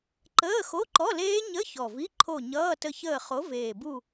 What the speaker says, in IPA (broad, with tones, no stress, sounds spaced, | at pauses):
ǃ əː˧˥˧ x o˧˥˧ ǃ ɔ˧˥˧ l eː˦˥ ɲ ə˧˥˧ ç ɔ˨˩ v i˧˥˧ ǃʰ o˦˨ ɲ ʌː˧˥˧ t ə˦˨ ç əː˦˨ χ o˨˥ v eː˨˩ b u˦˨